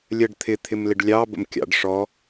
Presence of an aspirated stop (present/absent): present